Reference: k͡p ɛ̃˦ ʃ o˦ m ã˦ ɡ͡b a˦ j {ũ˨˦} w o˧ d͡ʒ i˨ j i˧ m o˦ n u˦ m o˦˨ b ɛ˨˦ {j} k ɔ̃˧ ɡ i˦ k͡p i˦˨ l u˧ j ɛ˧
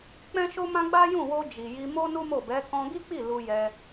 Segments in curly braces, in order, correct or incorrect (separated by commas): incorrect, incorrect